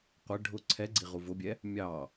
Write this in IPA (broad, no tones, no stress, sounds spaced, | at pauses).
qʷ ɪ ɖʱ ʊ ǀʰ ɛ ɡ͡ǀ i ʁ u v ʊ bʲ ɛ | mʲ ɑ